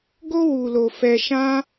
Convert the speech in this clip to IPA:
ɡ o˧ w u˨ l o˨ f ɛ˧ ʃ ã˦

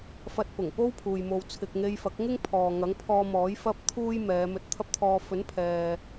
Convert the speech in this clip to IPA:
f ɐ˧ t̚ p ʊ˨˩ ŋ p o˥ w pʰ uː˨ j m o˨ w t͡sʰ ɪ˨ k̚ ŋ e˧ j f ɐ˨˥ k̚ ŋ ɪ˥ ŋ pʰ ɔː˨ ŋ ɐ˨˥ ŋ pʰ ɔː˧ m ɔː˨˥ j f ɐ˥ p̚ t̪ʰ uː˥ j m ɛː˨˧ m ɵ˧ t̚ t̪ʰ ɐ˥ p̚ t̪ʰ ɔː˧ f ɵ˨˥ n pʰ ɛː˨

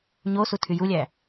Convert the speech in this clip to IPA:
ɲ o s u tʰ y j u lʲ æ

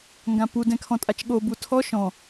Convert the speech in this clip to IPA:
ŋ ɡ ã p u d ɛ̃ kʰ ɔ̃ tʼ a t͡ʃ ɠ o b u tʰ ɔ ʃ ɔ̃

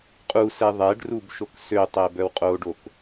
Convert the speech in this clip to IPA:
qʼ u s ɛ ðˤ ɛ ɖ r u b ʃ o k s ø tˤ ɛ b œ w qʼ o ɖ o k

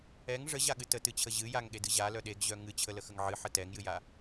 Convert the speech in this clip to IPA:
ɛ ŋ ʐ ə ʑ a ɠ ɨ t ə t ɨ t͡ɕʰ ə ʑ ɨ j a ŋ ɠ e d ɨ ʑ a l œ ɗ e ɡ ʑ œ ŋ ɨ t͡ɕʰ ə l ə x ə ŋ ʕ ɨ ħ ə t ɛ ŋ j ɨ j a

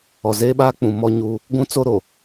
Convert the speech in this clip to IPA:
ɔ˨ z eː˦ ɓ aː˦ k͡p ũ˨ m ɔ˦ ɲ uː˦ | ɡʷ ũ˦ t͡s o˦ ɾ o˨

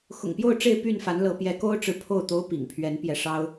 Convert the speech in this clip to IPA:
x ʊ̰˨˩ ŋ p j o˥˨ ʊ̯ ʈ͡ʂ e˥˨ ɪ̯ p y˥˨ n f a˨˦ n l ɤ˨˦ p j ɛ˨˦ k o˦ ʊ̯ ʈ͡ʂ ɻ̩˨ pʰ o˥˨ ʊ̯ t̪ o˦ ʊ̯ p ḭ˨˩ ŋ pʰ ɥ ɛ˨˦ n p j ɛ˨˦ ʂ ɑ˦ ʊ̯

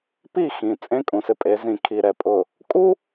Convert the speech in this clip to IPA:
p i˦˨ x ĩ˨ t͡sʼ ẽ˦ kʼ ũ˨ s ɪ˦ pʼ e˨˦ z ĩ˨ kʰ i˨ ɾ ɛ˨ pʼ ʊ˨ | kʼ u˦

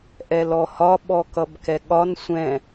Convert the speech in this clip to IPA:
ʔ ɛ l ɔ h ɒ ɓ ɔ k ʌ b k ɛ ɠ ɒ n sʷ ɛ̃

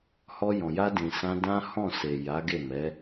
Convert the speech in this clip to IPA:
h ɔ˧ j ɔ̃˨ j a˧ d ĩ˨ s ã˧ d ã˦ h ɔ̃˦˨ s e˨ j a˨˦ ɡ e˦˨ m ɛ˨˦

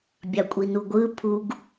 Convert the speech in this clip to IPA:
bʲ ɑ kʷʼ i n u ɡʷ ɯ pʰ u ɡ

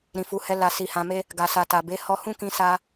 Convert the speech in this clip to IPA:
ɾ ĩ˨ f u˨˦ h ɛ˧ l a˨ s i˨ h ã˨ m e˧ | ɡ a˨ s a˨ t a˨ b e˨˦ h ɔ˧ h ũ˦ k ĩ˧ s a˧

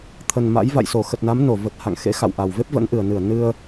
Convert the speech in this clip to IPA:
t̪ʰ ə˨˩ n m a̰˧˥ j v a̰˧˨ j s o˧˩ x ə˨˩ t̚ n a˨˦ m n o˧˩ v ə˨˩ t̚ h a̰˧˨ ŋ x ḛ˧˥ x a̰˧˨ w ʔ a˨˩ w v e˦˥ p̚ v ə̰˧˥ n ʔ ɨ˨˩ ə̯ n ɨ˧˩ ə̯ n ɨ˧ ə̯

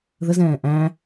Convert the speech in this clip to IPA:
ð ə z ɛ̃ː ʔ æ̃

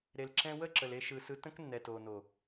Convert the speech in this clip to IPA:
ɾ e˨ l ǁ ɛ̃˧ w ə˦˨ ǁ ə˨ l e˧ ʃ ɯ˨ s ɯ˧ t ə̃˦ k nː ɛ˨ t o˨ n o˨

